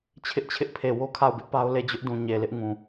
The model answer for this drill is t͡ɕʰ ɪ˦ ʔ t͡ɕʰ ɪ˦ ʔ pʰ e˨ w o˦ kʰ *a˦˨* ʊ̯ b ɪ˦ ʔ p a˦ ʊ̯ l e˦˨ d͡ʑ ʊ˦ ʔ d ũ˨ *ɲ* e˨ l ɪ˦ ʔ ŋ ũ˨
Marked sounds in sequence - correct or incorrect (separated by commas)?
correct, correct